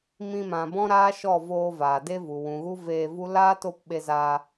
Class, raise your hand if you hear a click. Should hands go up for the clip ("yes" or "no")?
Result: no